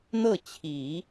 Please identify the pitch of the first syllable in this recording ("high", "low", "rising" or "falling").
falling